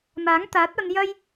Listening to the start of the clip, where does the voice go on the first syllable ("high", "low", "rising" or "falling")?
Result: rising